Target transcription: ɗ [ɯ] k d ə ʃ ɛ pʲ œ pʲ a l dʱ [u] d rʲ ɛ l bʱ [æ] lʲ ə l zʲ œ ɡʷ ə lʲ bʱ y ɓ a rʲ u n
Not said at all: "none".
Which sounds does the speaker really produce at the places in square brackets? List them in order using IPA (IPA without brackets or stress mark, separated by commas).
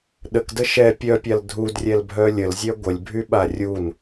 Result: ə, u, œ